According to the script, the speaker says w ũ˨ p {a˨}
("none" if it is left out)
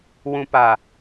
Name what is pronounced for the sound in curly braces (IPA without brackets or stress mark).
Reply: a˨